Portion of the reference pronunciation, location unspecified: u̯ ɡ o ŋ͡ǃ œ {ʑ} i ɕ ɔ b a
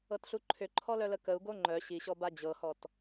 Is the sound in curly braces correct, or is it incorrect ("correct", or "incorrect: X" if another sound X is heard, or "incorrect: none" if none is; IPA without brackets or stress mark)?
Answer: incorrect: ɕ